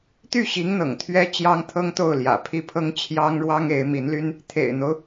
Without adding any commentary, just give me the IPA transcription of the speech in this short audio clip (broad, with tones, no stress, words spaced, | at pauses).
t̪y˥˩ɕi˧˥ŋn̪ɤ̰˨˩ŋ t̪ʰɥɛ˥ t͡ɕjɑ˥ŋt̪ʰɤ˥ŋt̪o˥˩ʊ̯ljä̰˨˩ pʰi˥˩pʰɤ˥ŋ t͡ɕʰjɑ˥ŋɻwɑ˥ŋe˧˥ɪ̯ mi˧˥nly˥n | t̪ʰḛ˨˩ɪ̯n̪o˦ʊ̯